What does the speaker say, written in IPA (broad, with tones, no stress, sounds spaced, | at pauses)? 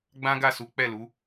ɡ͡b ã˦ ɡ a˦˨ s u˨˦ k͡p ɛ˦˨ l u˨˦